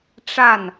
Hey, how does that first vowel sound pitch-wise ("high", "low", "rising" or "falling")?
falling